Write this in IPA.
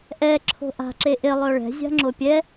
ʔ ɛ ǁʰ o̤ ʔ a̤ ǁ e ʔ ɪ lˠ œ ɭ ɛ̤ zʲ a̤ ŋ͡ǁ o pʲ ɛ

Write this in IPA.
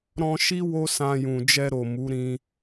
ɾ ɔ̃˧ ʃ i˦ w o˦ s ã˧ j ũ˨ d͡ʒ ɛ˧ ɾ o˨ m u˨˦ ɾ ĩ˧

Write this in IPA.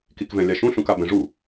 k i k v ɛ̃ lʲ a ʃ ũ ɬ ũ k a b ɛ̃ ʐ u

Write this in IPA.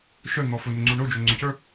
ʃ œ n̪ ɔ f ʊ n ʊ ŋ͡ǀ u ɳ o d͡ʒ o ŋ͡ǀ ʊ c ə˞

